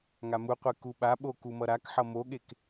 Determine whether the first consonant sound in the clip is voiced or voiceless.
voiced